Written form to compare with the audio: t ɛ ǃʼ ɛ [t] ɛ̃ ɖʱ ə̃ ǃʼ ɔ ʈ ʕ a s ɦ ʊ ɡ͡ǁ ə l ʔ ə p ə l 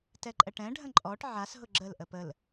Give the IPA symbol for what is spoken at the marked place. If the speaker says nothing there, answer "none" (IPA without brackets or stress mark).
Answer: ʈ